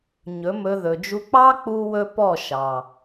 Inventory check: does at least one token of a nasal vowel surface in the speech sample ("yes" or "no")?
no